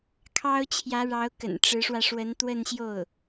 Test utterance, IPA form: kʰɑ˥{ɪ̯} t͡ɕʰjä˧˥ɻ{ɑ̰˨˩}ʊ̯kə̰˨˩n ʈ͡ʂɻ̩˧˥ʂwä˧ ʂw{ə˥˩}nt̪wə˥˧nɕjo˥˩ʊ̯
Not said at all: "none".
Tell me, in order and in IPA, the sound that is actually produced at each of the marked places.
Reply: ʊ̯, ɑ˧˥, ə˧˥

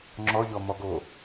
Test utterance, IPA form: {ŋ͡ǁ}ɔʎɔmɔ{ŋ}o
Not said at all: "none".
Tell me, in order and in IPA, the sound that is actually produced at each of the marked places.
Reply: ŋ͡ǁ, ɡ

